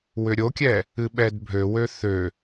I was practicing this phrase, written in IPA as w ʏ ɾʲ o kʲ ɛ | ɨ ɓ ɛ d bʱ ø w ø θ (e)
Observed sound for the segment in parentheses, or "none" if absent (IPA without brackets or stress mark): ø